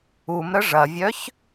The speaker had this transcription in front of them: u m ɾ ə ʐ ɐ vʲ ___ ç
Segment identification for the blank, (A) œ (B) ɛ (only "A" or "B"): A